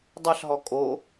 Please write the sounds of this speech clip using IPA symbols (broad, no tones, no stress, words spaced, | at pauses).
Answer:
dˤɛɬɦɔ kʼo